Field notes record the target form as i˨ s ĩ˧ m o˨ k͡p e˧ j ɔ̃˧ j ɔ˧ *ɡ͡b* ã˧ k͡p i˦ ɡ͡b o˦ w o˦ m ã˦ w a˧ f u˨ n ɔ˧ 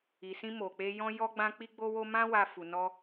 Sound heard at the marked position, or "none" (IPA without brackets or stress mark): ɡ͡b